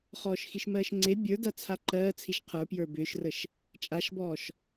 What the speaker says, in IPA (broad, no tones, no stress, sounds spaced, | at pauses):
χ ɔː ʃ x i ʃ m ɜː ʃ ŋ͡ǀ e bʲ ə˞ d a t͡sʰ a ǃ ɜː t͡sʰ i ʃ qʰ ə˞ p j ə˞ b ʏː ʃ r ə ʃ | t͡ʃʼ a ʃ b ɔː ʃ